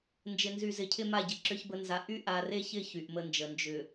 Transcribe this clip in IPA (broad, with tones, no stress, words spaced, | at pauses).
nd͡ʒɪ˨nzy˨zɪ˨cʰɪ˦ ma˦˨ɟɪ˨ǁʏ˦çbə˦ nza˨ ʔy˦ʔa˨re˦çɪ˦˨ç y˨ʔmə˦nd͡ʒə˨ nd͡ʒʏ˨